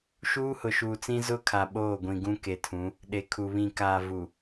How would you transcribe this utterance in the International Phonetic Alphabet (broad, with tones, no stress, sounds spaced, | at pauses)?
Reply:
ʃ uː˦ h ʊ˨ ʃ uː˨ t͡s ĩ˦ z ʊ˦ kʰ a˨ ɓ oː˦˨ ɡʷ ĩ˨ ɡ ũ˦ k e˨ tʰ ũ˨˦ | ɗ e˨ kʰ u˨ β ĩ˨ k aː˨ v u˨